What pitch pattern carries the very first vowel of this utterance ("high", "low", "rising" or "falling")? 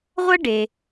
high